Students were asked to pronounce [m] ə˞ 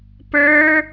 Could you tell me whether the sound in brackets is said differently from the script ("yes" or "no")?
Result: yes